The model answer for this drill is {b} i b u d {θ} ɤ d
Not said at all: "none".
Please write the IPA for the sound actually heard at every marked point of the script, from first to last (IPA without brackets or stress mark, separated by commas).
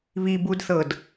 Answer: β, θ